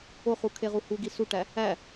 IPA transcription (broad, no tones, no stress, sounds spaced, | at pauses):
o χ u kʰ e ʁ u h u ɡ i s u ʈ æ | æ